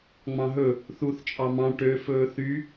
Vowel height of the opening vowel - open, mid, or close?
open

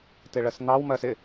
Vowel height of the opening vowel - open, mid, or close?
close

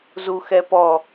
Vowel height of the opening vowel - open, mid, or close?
close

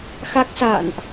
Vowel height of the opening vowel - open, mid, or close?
open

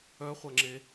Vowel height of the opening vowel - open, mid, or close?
mid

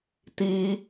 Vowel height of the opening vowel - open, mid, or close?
close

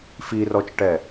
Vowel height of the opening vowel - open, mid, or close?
close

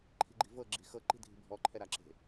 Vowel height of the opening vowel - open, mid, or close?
close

